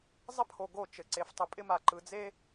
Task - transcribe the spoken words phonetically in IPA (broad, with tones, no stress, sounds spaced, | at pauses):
zˤ ɪ˦ pʰ o˨ ɡ o˦˨ t͡ʃ ɘ˨ ǀ e˨ f tˤ ɪ˨ pʼ ɪ˦ m a˨ ǃ ɯ˨ d͡z e˦